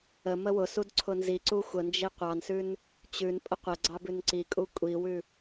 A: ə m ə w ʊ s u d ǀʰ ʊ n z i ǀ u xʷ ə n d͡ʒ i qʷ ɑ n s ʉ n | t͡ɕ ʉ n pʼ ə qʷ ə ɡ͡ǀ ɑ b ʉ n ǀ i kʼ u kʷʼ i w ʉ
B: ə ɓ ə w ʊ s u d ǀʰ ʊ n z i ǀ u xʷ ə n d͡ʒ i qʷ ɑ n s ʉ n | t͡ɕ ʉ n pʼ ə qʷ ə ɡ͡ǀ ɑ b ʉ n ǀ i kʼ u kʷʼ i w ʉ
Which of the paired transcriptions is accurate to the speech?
A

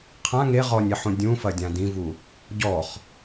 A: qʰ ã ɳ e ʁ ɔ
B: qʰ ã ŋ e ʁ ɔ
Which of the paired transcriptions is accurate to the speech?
B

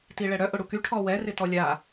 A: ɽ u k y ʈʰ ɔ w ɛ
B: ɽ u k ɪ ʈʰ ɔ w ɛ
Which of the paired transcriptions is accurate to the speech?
A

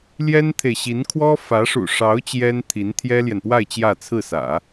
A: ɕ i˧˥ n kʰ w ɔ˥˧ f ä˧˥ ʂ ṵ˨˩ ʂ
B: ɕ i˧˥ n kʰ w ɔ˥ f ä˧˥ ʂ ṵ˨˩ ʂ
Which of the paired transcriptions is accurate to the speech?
B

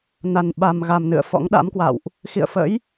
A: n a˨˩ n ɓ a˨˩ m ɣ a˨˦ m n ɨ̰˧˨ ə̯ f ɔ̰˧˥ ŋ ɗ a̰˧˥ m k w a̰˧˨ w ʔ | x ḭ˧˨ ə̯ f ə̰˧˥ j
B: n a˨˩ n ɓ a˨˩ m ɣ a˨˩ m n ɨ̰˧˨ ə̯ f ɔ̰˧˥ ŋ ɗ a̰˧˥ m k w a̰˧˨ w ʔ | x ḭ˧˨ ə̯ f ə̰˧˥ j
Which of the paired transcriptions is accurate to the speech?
B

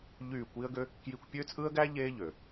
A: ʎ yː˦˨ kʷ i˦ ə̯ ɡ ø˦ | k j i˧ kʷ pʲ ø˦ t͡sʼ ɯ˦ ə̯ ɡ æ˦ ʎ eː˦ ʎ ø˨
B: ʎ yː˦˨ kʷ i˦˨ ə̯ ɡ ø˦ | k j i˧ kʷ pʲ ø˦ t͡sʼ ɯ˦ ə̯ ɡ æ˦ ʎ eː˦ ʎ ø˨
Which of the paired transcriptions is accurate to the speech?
A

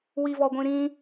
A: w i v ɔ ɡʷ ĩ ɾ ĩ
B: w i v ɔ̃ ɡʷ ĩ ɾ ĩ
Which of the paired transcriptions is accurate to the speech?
A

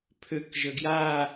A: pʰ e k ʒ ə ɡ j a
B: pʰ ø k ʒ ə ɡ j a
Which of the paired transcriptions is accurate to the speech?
B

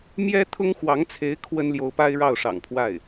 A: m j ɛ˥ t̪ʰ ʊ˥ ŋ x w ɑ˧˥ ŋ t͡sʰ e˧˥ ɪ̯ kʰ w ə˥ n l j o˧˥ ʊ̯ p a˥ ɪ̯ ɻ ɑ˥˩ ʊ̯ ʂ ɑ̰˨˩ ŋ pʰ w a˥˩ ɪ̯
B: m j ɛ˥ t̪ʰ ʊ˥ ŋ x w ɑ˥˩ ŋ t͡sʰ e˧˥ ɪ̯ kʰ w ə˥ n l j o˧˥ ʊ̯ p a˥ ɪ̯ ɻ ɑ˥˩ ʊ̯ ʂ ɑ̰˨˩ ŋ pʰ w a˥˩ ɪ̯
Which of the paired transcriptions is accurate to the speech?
A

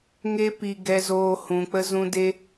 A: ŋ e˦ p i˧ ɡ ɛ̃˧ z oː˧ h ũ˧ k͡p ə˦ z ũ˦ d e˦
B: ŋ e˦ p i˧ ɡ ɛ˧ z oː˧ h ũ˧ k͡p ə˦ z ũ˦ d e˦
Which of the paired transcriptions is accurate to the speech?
B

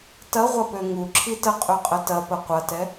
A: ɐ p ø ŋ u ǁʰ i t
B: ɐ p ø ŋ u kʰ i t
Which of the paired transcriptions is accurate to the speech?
A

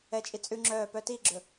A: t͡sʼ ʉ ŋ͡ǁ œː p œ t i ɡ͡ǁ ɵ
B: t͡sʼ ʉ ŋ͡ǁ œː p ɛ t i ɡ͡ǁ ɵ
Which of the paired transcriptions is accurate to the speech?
A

